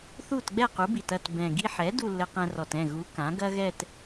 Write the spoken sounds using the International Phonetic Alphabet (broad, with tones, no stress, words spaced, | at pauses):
θu˥˩t ɡ͡bɛ˥˩qu˩˥bi˨˩t ɐ˥˩t bɛ̃˨˩ ɡi˧ħɛ˩˥ du˥˧lːɘ˧qɛ̃˧rɔ˨˩t ɛ̃˥˩ ɣu˩˥ kã˩˥ɡɐ˥ɣɛ˥˧t